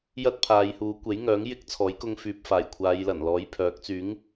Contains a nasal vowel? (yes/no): no